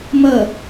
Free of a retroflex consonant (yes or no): yes